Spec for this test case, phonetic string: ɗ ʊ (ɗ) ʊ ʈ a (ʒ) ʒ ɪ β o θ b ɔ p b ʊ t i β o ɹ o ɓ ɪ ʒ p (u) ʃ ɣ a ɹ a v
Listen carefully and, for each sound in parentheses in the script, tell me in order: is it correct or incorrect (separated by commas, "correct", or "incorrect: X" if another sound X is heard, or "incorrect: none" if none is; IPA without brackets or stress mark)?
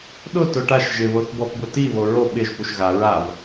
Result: incorrect: t, incorrect: ʃ, correct